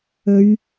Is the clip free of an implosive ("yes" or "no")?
yes